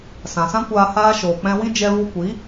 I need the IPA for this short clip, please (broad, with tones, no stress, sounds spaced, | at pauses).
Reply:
s ã˨ s ã˦ kʷ aː˧ h aː˧ ʃ oː˨ k͡p ɛ̃˧ w ĩ˦ d͡ʒ ɛ˧ v u˧ kʷ i˨˦